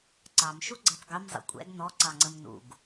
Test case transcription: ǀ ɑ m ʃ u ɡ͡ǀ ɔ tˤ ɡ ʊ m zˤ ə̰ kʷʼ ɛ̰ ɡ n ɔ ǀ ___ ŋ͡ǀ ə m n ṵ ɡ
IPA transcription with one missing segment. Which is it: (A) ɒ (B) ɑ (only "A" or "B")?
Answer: B